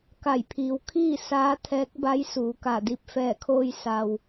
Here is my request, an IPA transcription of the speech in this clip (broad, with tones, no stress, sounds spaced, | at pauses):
k a˧˩ j pʰ iː˩ w kʰ iː˥˨ s aː˧˥ t̪ʰ ɛː˧˥ k̚ b a˧˥ j s uː˩˧ k a˧˩ d i˧ p̚ f ɛː˧˩ kʰ oː˧ j s a˩ w